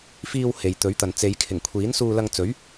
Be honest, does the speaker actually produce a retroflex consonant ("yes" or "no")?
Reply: no